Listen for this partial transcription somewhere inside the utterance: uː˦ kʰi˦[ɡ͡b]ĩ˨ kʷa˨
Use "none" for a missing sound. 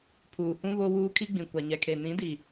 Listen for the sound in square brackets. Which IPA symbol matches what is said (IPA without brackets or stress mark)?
ɡ͡b